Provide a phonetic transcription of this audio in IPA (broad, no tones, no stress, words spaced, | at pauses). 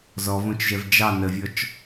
zɔvõt͡ʃʒɛv d͡ʒɑ nəvʲɔt͡ʃ